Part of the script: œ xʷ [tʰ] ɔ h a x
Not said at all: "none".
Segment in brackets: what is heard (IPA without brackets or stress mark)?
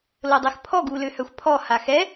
pʰ